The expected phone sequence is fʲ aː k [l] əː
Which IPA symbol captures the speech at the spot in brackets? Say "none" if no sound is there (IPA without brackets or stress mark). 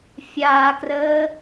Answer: r